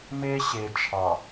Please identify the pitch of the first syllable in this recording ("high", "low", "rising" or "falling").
high